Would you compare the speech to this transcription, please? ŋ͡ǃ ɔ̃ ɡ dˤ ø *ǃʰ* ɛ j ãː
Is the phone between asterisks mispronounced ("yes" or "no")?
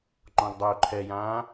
no